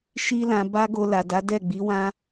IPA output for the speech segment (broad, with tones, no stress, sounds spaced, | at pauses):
ʃ i˦ l ã˧ b a˦ ɡ o˧ l a˨ d a˨˦ d ɛ˦˨ ɡ͡b i˨˦ w ã˦